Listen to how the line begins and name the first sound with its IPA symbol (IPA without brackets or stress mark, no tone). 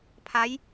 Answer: pʰ